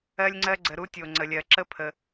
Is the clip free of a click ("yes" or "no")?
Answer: no